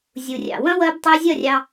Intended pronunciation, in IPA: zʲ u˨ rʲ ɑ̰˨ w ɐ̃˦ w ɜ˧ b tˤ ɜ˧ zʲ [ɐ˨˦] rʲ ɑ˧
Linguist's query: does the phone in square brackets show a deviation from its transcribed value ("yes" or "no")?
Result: yes